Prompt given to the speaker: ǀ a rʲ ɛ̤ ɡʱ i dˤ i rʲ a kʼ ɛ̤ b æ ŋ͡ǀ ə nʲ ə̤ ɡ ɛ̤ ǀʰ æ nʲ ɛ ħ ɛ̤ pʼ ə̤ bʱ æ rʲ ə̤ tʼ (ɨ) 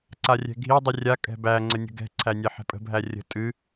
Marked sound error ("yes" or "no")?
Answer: no